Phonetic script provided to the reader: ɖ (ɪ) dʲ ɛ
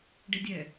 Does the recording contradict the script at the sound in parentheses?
no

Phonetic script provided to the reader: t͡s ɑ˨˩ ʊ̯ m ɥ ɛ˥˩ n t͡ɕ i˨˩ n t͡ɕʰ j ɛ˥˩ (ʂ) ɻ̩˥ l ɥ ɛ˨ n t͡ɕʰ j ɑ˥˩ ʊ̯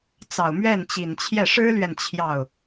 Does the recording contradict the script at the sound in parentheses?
no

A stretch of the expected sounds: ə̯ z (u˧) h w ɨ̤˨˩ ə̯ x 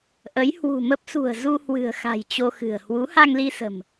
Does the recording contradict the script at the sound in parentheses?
no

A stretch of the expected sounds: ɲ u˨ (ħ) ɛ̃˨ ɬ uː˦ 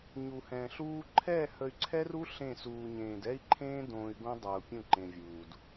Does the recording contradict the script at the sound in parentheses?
yes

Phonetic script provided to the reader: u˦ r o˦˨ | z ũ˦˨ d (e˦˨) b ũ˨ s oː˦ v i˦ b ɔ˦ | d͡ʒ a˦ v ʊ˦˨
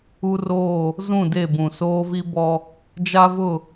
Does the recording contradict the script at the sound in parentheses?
no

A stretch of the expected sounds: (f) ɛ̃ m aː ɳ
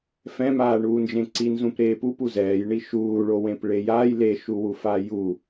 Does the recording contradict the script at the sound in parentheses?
no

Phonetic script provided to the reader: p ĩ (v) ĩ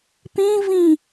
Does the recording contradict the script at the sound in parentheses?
no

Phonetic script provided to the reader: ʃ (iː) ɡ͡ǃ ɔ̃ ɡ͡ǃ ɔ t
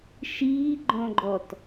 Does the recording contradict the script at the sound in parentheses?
no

